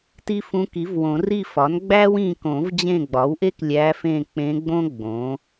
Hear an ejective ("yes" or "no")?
no